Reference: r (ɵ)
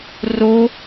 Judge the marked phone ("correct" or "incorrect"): incorrect